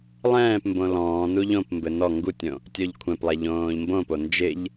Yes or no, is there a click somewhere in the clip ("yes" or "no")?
no